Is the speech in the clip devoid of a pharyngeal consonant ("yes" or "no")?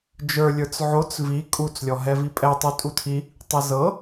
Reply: no